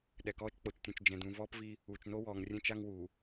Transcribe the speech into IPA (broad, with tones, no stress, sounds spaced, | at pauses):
ɗ ɛ˨ k ɔː˦ t͡ʃ k͡p o˨ t͡ʃ tʲ ũ˨ t͡ʃ d͡ʒ ɛ̃˨ d ũ˨ v ɔː˦ p v i˦ | uː˨ t͡ʃ n o˦ w ɔː˨ ŋ rʲ ɛ̃˦ t͡ʃ a˦ ŋ w uː˨